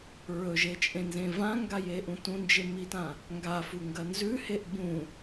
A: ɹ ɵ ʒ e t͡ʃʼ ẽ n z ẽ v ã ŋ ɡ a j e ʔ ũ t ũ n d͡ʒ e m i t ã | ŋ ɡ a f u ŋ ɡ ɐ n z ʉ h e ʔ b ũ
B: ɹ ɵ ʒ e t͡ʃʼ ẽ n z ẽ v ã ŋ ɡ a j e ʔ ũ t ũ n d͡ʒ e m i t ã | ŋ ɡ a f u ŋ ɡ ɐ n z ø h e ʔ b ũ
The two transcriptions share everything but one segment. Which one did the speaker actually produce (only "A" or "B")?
A